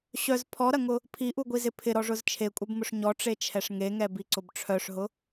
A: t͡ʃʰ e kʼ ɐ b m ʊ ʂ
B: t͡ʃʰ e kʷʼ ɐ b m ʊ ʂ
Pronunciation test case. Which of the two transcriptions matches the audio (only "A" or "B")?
B